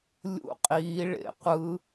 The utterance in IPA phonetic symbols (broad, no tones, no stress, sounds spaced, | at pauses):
lʲ ṵ qʼ i ɭ ḛ qʷ ɯ